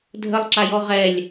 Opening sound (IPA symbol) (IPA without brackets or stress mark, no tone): dʱ